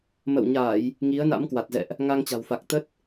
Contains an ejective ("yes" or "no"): no